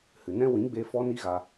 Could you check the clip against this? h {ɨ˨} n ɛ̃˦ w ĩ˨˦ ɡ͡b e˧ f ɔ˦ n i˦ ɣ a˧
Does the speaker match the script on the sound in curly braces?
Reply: yes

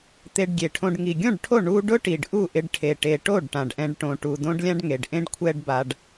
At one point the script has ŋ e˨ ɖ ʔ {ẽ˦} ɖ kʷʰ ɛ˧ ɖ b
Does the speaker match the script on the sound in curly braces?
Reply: yes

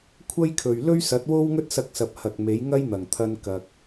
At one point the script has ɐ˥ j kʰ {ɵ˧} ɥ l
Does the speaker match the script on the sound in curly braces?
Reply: no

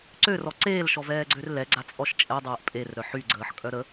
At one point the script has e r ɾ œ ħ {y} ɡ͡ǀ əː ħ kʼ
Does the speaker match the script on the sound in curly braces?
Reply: yes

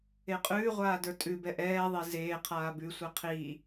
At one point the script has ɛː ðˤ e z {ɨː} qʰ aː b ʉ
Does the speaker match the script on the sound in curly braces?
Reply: no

